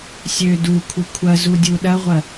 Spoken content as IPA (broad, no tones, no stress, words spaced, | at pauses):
sʲø dukʷʰɪ kʷʰɐzu dʲuɗɐʁʷɐ